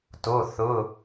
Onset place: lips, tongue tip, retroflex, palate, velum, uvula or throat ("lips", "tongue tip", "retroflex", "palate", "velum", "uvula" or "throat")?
tongue tip